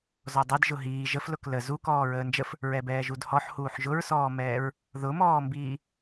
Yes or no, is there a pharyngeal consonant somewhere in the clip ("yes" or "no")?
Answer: yes